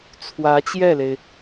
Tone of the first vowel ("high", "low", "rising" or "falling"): rising